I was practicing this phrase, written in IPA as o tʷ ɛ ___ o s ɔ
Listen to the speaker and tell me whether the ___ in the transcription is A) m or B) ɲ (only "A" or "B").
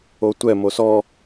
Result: A